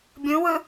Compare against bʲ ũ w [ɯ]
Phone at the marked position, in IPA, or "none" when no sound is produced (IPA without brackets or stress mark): ɯ